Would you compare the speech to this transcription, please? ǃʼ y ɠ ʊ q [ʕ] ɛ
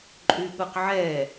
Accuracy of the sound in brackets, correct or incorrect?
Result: correct